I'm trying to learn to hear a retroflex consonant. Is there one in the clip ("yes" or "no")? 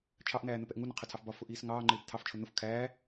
no